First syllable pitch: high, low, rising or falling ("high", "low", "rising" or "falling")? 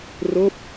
falling